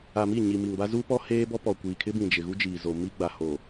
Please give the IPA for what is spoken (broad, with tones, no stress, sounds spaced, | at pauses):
a˨ m i˦˨ ɲ i˨ m i˨ ŋ b a˦ z uː˦ p ɔ˦ h eː˦ b ɔ˦ p ɔ˨ kʷ iː˨ kʰ ɪ˦ b ĩ˨ d͡ʒ ɪ˨ ɣ u˦ d͡ʒ iː˨ z o˨ m i˦ ɡ͡b a˨ h o˨